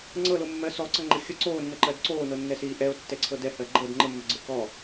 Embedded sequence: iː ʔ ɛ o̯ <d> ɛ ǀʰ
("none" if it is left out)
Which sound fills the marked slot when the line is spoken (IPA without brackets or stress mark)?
tː